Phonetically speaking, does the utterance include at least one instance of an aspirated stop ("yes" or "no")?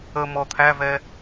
yes